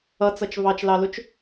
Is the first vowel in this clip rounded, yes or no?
no